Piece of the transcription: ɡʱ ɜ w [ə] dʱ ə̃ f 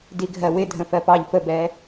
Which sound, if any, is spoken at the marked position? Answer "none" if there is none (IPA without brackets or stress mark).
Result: ɪ